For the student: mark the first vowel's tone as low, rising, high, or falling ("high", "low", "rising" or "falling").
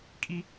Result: high